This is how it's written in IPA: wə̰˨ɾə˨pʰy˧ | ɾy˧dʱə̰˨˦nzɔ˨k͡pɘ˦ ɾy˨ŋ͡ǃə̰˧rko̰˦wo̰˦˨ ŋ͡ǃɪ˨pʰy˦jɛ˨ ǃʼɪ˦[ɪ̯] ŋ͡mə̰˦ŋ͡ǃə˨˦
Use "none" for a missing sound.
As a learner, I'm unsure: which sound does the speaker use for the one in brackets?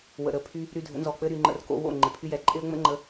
ə̯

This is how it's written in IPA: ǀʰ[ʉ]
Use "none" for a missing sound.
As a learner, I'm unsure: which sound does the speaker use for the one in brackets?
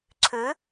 ʉ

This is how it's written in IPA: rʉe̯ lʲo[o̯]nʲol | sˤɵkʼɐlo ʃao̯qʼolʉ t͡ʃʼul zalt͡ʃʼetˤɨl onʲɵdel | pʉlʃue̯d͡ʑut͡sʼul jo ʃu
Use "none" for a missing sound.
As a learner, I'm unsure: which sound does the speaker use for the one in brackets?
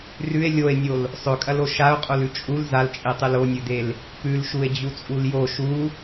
e̯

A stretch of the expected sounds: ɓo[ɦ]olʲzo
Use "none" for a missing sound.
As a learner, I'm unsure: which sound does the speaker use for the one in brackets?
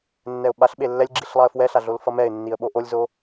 ʔ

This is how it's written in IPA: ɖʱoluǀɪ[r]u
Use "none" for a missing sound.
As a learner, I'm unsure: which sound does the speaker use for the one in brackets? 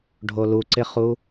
χ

